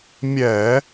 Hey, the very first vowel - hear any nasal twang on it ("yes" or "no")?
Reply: no